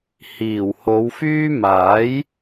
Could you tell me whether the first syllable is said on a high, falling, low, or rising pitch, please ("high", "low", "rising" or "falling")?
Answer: low